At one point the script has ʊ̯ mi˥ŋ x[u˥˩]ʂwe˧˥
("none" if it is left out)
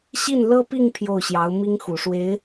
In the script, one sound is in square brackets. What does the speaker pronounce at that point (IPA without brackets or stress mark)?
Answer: u˨˩